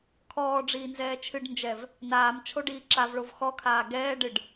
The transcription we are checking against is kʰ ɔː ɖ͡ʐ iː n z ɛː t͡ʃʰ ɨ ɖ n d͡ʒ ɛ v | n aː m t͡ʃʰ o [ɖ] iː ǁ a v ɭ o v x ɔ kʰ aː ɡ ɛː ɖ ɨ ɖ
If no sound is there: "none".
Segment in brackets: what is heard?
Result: ɖ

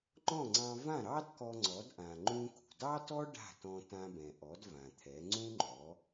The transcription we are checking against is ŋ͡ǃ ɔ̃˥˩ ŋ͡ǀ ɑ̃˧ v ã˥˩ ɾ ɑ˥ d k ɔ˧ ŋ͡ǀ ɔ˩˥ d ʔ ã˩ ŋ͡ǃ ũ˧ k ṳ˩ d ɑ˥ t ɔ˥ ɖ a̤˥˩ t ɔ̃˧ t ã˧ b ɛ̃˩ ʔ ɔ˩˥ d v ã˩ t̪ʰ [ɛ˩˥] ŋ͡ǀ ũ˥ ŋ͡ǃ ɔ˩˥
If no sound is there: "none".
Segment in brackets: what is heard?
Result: ɛ˩˥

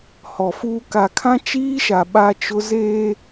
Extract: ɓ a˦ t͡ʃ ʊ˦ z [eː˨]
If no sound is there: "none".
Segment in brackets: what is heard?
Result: eː˦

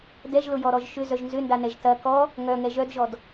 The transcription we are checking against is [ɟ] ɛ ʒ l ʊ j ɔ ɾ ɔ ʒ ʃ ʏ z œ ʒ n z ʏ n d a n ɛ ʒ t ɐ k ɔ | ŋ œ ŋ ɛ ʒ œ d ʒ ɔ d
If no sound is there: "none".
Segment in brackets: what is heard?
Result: d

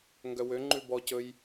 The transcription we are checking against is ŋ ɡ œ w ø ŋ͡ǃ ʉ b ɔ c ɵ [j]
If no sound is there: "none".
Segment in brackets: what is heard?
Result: j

